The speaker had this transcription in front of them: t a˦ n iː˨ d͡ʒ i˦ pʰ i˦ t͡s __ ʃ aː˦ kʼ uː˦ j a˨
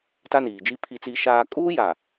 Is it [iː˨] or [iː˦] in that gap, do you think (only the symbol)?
iː˦